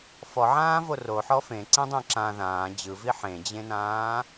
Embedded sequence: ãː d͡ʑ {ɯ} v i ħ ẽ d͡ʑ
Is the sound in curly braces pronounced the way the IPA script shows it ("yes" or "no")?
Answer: yes